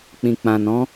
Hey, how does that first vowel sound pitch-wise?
low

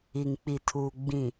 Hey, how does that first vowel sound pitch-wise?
low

